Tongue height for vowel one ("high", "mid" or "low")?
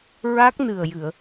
low